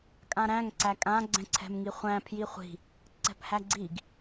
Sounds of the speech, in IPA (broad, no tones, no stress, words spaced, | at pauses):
kʼãɾæ̃ŋ ǀækʼã ɡ͡ǀɛ̃ǀʰɛ̤mŋiχʷæ̃ pʰjiχʷi̤ | ǀɛ̤phæɡ͡ǀiɡ